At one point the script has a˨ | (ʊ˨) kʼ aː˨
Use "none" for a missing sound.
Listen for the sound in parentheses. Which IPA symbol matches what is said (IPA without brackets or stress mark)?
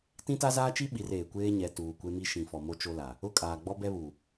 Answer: ʊ˦˨